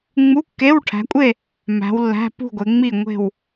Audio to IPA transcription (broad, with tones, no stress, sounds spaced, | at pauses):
ŋ͡m u˧˥˧ kː e˧˥˧ w ʈʰ æ̤˨˦ kʷʼ e˥˧ | m æ̤˨˦ w lː æ̤˧˥˧ p ṳ˥˧ ɡʷ e˨˦ ŋ͡m i˥˧ ŋʷ e̤˥˧ w